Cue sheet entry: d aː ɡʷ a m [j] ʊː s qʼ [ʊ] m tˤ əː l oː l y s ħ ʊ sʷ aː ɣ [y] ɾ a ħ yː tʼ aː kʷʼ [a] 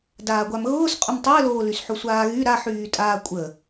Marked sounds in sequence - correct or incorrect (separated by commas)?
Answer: incorrect, correct, correct, incorrect